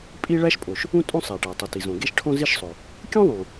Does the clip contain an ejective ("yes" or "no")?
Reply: yes